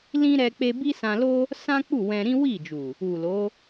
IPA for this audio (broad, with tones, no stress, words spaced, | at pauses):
lĩ˦ ɾɛ˧k͡pe˧ bi˦sã˧lo˦ | sã˦k͡pu˦˨ wɛ̃˧ɾĩ˦wi˦˨d͡ʒu˨ | u˨lo˨˦